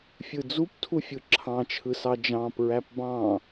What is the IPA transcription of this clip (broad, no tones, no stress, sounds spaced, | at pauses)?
fʲ ɯ d͡z u p tʰ u fʲ ɯ ǁʰ ɑ̃ t͡ʃʰ ɯ s ɑ d͡ʒ ɑ̃ p ɹ æ p b ɑ̃